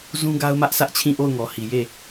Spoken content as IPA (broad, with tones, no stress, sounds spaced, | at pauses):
z ũ˦ ɡ a˦ ʊ̯ m ä˦ ʔ sʰ ä˦ ʔ t͡ɕʰ ĩ˦˨ ʔ o˦˨ ʊ̯ ŋ ɔ˨ h i˨ j e˦˨